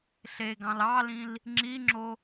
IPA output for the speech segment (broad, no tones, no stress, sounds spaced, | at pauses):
ɬ e ɡ ɑ̃ l ɑ l ĩ l | ŋ͡ǁ i ŋ͡ǁ o